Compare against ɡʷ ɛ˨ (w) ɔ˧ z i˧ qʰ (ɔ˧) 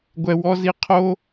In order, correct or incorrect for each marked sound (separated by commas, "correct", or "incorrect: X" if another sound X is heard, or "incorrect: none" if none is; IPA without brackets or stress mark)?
correct, incorrect: o˧